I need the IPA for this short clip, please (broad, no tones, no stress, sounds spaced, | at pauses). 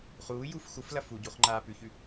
χ uː j u f x u f l ɐ f u ɟ u χ ŋ͡ǃ aː p ʉ ç ʉ